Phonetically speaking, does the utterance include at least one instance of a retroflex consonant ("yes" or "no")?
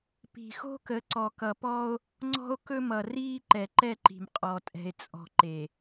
no